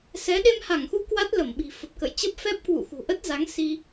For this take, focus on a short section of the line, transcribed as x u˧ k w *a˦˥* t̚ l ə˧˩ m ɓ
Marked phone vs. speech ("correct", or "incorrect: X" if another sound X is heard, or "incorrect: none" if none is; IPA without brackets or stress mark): correct